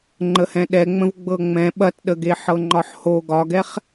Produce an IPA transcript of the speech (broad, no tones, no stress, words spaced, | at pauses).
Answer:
ŋ͡ǃəhɛ̃ɗɛŋ͡mə̃v ɡ͡bɤŋ͡mɛ̃ ɓɐtɗəɡe ħɤŋ͡ǃɒħho ɡɒɡɛχ